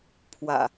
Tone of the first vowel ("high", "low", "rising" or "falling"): low